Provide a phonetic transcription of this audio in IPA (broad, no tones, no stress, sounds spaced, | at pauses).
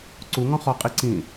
ǀ u ŋ ɔ̃ χ ɔ qʼ i ǀ ĩ